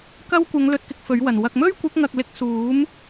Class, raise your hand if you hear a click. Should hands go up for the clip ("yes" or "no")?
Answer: no